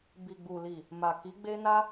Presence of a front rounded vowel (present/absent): absent